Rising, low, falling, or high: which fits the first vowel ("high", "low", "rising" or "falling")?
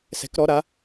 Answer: rising